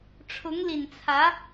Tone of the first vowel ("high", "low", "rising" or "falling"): rising